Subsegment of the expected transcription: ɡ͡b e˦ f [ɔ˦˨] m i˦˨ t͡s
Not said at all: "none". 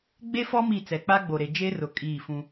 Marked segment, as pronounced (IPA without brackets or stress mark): ɔ˦